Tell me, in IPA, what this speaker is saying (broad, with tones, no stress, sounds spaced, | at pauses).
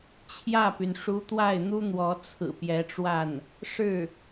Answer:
t͡ɕʰ j ä˥˩ p y˩ n ʂ u˧˥ t̪ w a˥˩ ɪ̯ n̪ u˥ n̪ w ɔ˧˥ t͡sʰ ɹ̩˨˩ p j ɛ˧˥ ʈ͡ʂ w a˥˩ n | ʂ ɻ̩˥˩